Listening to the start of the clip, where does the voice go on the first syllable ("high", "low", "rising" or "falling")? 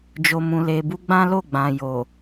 low